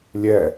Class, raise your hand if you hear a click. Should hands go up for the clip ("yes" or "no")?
no